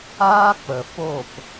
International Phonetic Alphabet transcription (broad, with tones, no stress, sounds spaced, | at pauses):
aː˦ k͡p ə˨ f o˦˨ p